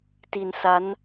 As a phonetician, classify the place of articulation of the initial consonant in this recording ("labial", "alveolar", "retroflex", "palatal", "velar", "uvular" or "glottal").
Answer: alveolar